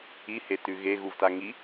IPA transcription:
i hetʉɣe ɣuvtaŋi

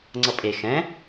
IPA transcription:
ŋ͡ǀʌpʼe xɛ̃

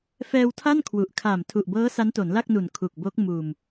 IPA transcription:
fɛː˧wtʰa˥˩n kʰwu˨˩ʔ kʰaː˨˩mtʰu˨˩ʔbɤː˦˥ sa˦˥nto˩˦nla˥˩k̚nu˨˩n kʰu˨˩k̚bo˦˥k̚ muː˨˩m

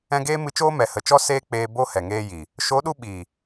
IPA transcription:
ɛ̃˧ɡeː˦mɨ˧t͡ʃoː˦ mɛ˨hə˨t͡ʃɔ˦ seː˦k͡peː˧ bo˦ hɛ˨ŋeː˦ji˨ | ʃo˨˦ɗu˧ ɓi˨

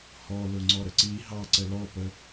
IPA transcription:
hɔ lʊŋ͡ǀɔɾəǀi ɦɑǀə lɔpə

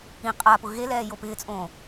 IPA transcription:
ĩ qʼapʊ ɣe lɛːjopɪːt͡sʼõː

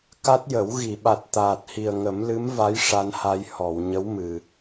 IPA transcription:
ka˦˥t̚jə˨˩˦w ɣi˨˩˨ɓa˨˩t̚ t̪aː˨˩t̚hi˨˩ə̯ŋə˨˩˦m lɨ˧˥mva˧˥j ʂa˧nha˧j hɔ˨˩˨w ɲə˧˥w mɨ˨˩

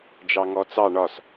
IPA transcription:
d͡ʒɑŋɔt͡sɑ ɳɒs

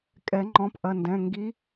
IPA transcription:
kʼɛ˨˩˦ŋ͡ǃɔ̃˨˦pʔɐ˩˧˩ndɛ̃˩˧˩ ŋɡi˨˦

